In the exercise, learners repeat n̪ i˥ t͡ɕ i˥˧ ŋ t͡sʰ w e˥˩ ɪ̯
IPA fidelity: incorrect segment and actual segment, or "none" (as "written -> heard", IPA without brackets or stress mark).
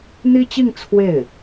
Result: none